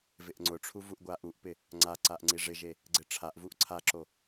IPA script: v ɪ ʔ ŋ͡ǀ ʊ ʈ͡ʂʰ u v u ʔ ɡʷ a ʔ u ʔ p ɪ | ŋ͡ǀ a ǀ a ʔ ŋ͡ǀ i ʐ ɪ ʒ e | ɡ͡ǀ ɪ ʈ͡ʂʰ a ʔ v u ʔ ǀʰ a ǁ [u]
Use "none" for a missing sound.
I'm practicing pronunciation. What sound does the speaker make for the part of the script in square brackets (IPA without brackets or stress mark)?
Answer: o